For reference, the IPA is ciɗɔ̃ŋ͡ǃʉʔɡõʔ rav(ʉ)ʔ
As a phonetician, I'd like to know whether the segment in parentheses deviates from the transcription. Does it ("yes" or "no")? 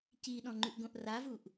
yes